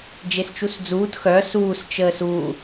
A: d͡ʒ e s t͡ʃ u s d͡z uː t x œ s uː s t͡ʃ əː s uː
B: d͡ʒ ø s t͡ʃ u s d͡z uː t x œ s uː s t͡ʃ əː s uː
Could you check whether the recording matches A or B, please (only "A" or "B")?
A